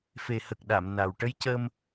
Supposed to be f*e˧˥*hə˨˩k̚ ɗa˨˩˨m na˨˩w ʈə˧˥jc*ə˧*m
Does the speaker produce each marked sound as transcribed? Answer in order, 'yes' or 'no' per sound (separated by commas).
no, no